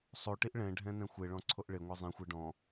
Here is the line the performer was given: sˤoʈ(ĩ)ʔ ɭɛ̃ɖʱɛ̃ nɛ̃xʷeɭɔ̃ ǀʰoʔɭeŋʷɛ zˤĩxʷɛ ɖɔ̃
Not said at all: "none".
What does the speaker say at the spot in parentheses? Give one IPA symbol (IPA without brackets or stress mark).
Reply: i